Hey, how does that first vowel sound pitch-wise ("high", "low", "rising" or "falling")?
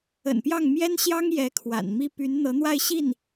low